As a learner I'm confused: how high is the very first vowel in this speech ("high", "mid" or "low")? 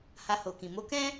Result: low